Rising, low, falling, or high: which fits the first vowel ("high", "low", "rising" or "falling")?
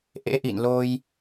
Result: rising